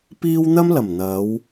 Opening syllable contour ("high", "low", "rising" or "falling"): high